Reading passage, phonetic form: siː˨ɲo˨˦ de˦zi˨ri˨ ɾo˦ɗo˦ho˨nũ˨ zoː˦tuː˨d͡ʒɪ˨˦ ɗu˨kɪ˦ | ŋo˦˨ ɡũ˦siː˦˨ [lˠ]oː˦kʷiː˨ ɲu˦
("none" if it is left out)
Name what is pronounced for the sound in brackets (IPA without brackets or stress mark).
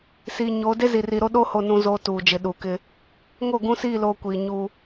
l